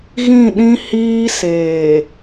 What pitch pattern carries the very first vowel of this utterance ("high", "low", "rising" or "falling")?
falling